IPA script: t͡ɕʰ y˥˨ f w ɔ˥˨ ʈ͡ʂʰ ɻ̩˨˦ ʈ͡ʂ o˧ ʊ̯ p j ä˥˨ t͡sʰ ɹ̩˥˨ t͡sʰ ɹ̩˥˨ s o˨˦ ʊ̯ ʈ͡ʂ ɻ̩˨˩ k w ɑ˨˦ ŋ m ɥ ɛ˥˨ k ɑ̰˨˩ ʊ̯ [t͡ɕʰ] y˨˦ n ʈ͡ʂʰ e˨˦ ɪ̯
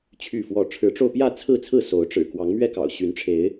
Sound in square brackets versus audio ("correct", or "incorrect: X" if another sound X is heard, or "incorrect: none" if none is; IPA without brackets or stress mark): incorrect: ɕ